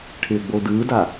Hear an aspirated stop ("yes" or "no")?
yes